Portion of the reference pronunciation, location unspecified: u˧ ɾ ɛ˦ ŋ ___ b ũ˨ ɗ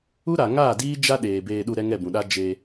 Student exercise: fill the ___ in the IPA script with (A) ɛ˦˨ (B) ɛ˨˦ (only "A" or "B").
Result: A